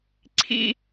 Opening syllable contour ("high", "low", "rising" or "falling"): high